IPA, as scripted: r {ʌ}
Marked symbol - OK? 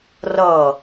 yes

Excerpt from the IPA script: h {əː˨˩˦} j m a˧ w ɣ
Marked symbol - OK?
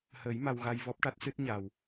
yes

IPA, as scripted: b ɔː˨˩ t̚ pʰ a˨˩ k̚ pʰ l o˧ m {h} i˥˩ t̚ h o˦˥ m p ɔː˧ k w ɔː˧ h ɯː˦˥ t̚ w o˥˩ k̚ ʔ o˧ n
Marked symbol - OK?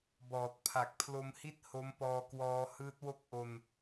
yes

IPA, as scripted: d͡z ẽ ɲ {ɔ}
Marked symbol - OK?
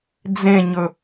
no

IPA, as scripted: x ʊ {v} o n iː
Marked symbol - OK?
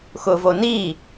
yes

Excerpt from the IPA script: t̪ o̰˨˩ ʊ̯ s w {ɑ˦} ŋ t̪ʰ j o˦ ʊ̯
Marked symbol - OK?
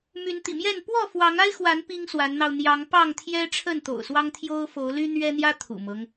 yes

